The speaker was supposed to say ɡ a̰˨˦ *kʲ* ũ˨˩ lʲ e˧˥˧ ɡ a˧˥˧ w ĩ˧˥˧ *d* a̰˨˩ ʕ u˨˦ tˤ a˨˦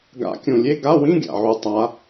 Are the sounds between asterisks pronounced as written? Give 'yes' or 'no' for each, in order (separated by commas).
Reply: yes, no